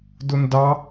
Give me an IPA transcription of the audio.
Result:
dʊndɑ

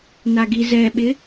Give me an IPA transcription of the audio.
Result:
naɡizɛɓɪ

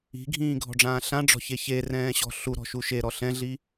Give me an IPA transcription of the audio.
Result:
i̤ɡʱĩːɡʱɔ̤ɖ͡ʐãː ɬãɖ͡ʐɔ̤çe çerɛ̃ːɕɔ̤ ɬuɾɔ̤ʃu ʃeɾɔ ɬɛ̃ɮi

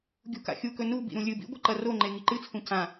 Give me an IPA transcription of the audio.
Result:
ɡʲṳka̰xʲukɵ nu bḭɾũlʲɨbḭ ɡʷɐǃɐroŋ͡ǃe ŋiǃɨt͡sʰũ cã

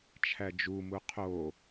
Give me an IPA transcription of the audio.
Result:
t͡ʃʰæd͡ʒumu qʰo

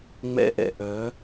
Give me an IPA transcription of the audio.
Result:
ŋ͡mɛ̰˦ʔɛ̰˨ʔœ˨˦

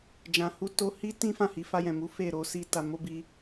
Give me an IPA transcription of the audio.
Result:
d͡ʒã˧hu˦ to˧hi˦ tĩ˦ fã˦˨hi˨˦fa˧jɛ̃˨ mu˨˦ fe˦˨ ɾo˧si˧ ta˨mo˧bi˧

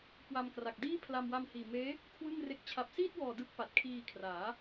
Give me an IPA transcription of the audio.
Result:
kwa˧mkra˨˩k̚diː˥˩pʰla˧m wa˧mhiː˨˩meː˦˥ | kʰwɯ˥˩ŋre˦˥k̚ t͡ɕʰa˨˩p̚siː˥˩t̚wɔː˨˩ dɯ˦˥k̚pa˨˩t̚kʰiː˧kʰraː˩˦

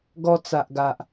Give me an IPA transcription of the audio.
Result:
ɡɔ˧t͡sa˨ʔɡa˨ʔ

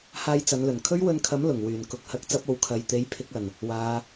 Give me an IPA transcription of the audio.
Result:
haː˧jt͡sɐ˨˧nlɵ˨˩n kʰɵ˥ɥwɵ˧nkʰɐ˨˥m lʊ˨˩ŋ wyː˨˩n kʊ˨˥k̚hɐ˨˥k̚ t͡sɐ˧p̚o˨wkʰɐ˨jt̪e˨˧j pʰɪ˨˥k̚ɐ˨˩n | waː˨˧

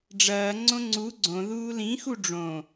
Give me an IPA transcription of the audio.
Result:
ɖ͡ʐɐːŋ͡ǀõ ŋ͡ǀu ɡ͡ǀõ ðuːlĩxu ɖ͡ʐõ

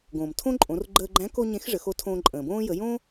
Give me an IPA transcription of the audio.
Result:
ɡõː˩m tʰõ˥ ǃʼõ˩˧rɡ͡ǃəː˧ɡ͡ǃæ̃˧˥ ko˥ɲẽ˧˥x ʐə˩˧xo˧˥ tʰõː˧ǃʼə̃ː˩bõː˥ jə˩˧jõ˥

